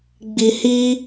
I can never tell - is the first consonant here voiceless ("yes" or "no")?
no